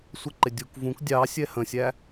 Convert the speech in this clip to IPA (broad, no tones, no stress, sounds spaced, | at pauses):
sʷ ə ǃ ɪ dʲ u k v ũ k dʲ ɑ sʲ ɛ h ə̃ sʲ æ